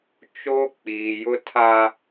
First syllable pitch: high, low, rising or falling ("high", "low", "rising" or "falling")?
high